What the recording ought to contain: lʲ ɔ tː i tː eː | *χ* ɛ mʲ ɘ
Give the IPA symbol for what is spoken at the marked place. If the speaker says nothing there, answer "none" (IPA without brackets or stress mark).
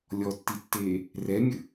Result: r